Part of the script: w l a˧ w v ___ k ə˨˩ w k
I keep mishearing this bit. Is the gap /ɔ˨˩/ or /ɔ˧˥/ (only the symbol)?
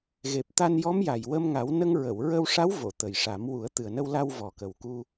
ɔ˨˩